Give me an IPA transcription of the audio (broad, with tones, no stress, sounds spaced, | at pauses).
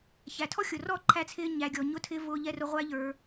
ç æ˨ tʰ ɔ˦ xʲ ʊ˨ r ɔ˦˨ ǃʰ æ˧ t͡sʰ ɪː˧ ɲ æ˨ ɡʲ ɔ˨ ɲ ʊ˦ tʰ ɪː˦ v ʊː˧ ʎ ɛ˧ r ʊ˧ ʁʷ æ˦ ʎ ə˞˧